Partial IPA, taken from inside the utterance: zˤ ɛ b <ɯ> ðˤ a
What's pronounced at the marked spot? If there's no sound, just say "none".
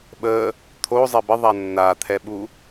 ə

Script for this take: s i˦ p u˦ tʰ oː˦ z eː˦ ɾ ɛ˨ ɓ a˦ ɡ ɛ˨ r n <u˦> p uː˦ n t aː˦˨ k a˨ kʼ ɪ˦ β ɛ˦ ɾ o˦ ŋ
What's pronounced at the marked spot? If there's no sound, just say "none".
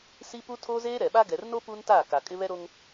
o˦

